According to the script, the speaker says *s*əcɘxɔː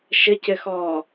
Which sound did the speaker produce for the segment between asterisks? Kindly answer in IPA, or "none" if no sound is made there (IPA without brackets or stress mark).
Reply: ʃ